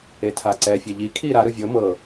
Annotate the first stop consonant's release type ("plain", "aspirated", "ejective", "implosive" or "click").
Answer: aspirated